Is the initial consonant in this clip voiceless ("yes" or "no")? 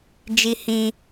no